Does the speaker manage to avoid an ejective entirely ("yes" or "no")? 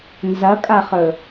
no